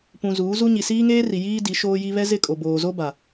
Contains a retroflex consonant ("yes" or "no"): no